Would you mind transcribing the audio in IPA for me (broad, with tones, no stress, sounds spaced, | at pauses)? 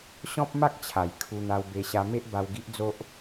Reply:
ɕ ɔ̃˦ p̚ m a˦ k̚ t͡ɕʰ a˨˩ j kʰ u˧ n̪ a˧ w b e˧ ɕ a˧ m e˦ ʔ b a˧ w ɡ i˦ ʔ d͡z o˦ ʔ